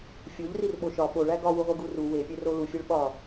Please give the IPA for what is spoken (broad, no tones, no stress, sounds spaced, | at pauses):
fʲ o ʎ r i r ɓ o ʃ ɒ ɓ o ɭ æ ɡ ɒ w u ʁʷ e ɡ u r u w e pʲ e r o l u fʲ e ɭ ɓ ɒ